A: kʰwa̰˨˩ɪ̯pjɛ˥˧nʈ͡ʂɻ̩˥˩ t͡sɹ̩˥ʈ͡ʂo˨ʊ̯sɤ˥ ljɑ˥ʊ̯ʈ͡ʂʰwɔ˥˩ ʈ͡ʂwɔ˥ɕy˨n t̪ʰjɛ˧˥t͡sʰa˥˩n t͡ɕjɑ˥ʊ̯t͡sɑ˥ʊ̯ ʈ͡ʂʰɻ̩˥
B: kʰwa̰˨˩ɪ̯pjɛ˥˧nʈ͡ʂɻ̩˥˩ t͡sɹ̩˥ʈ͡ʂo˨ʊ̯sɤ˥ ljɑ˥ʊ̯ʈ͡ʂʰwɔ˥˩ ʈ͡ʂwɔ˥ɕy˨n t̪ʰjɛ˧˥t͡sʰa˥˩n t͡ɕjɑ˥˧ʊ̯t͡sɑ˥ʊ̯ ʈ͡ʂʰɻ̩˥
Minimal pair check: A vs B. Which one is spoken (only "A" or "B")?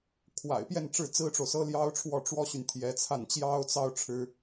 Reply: A